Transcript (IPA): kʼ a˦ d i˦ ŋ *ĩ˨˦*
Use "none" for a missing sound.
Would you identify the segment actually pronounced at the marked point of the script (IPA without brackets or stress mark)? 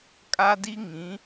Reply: ĩ˨˦